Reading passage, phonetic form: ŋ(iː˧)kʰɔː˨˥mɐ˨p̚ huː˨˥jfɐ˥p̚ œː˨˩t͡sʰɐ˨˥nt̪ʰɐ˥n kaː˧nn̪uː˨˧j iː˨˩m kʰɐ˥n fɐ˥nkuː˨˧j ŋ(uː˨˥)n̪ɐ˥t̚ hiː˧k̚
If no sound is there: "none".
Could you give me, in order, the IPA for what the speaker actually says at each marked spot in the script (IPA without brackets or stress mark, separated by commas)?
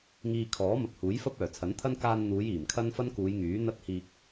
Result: iː˧, yː˨˥